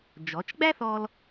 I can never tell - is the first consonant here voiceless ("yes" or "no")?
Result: no